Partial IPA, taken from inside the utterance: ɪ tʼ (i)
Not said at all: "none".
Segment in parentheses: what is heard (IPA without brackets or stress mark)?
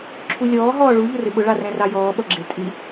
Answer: i